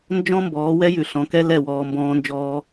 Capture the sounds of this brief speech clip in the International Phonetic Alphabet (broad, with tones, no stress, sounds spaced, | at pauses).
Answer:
n d͡ʒ ɔ̃˦ m b ɔː˨˦ w ɛ˦ j ʉ˨ ɬ ɔ̃˨ k ɛ˦ l ɛ˦˨ w ɔː˧ m b ɔ̃ː˦ n d͡ʒ ɔː˦